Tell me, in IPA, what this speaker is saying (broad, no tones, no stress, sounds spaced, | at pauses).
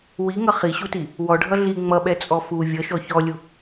w i ŋ ʌ χ i ɕ u t i | w ɔ ɖʱ ʌ ɮ i ŋ͡m ʌ ɓ ɛ t͡sʼ ɔ f u vʲ ʌ ʃ ɔ ç ɔ lʲ u